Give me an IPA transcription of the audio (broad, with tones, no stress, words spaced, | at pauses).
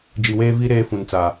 d͡ʒi˨weː˦ vi˦ ɾeː˦fũ˨nt͡sa˨